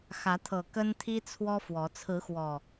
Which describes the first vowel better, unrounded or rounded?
unrounded